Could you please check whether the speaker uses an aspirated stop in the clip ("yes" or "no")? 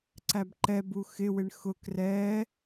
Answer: no